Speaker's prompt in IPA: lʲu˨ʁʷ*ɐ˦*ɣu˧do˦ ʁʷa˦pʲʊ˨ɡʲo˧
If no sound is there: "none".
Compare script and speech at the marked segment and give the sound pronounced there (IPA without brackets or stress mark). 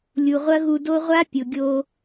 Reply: ɐ˦